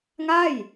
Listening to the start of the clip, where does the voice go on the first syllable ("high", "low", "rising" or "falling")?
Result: falling